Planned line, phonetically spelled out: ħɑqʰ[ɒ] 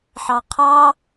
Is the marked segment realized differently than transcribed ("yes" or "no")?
yes